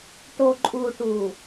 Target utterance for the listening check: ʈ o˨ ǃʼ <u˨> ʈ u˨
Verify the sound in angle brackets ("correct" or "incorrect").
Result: correct